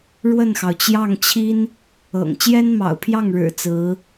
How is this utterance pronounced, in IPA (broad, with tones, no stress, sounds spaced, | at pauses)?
ɻ w ə˥˩ n x ɑ˩ ʊ̯ t͡ɕ j ɑ˥˩ ŋ t͡ɕʰ i˥ n | ɤ̰˨˩ ŋ t͡ɕ j ɛ˥ n m ɑ̰˨˩ ʊ̯ pʰ j ɑ˥˩ ŋ ɻ ɻ̩˨˩ t͡s ɹ̩˧˥